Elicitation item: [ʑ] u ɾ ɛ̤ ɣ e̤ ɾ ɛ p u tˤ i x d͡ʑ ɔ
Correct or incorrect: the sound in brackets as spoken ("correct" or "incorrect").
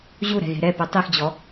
correct